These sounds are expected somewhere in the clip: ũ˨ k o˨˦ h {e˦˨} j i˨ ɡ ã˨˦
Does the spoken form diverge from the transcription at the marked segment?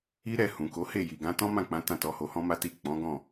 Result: no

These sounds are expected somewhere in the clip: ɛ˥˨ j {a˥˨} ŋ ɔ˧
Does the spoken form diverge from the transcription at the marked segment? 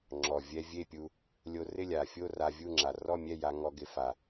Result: yes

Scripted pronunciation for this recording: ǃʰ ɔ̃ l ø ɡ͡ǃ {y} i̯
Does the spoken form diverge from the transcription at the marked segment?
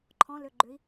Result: yes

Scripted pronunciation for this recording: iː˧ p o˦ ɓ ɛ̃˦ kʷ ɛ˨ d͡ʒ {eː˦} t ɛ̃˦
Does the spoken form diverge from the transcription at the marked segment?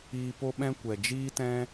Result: yes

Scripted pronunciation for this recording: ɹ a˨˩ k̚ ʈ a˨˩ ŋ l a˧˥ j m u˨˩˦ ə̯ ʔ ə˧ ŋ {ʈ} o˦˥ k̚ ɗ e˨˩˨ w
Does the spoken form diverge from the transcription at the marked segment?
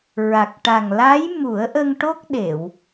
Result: no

